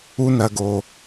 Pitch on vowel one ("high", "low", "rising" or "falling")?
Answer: high